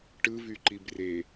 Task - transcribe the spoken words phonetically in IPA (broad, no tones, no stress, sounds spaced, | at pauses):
ʈ ɯ v y ǃ i b r e